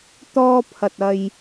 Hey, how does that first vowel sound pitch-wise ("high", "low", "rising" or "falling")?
high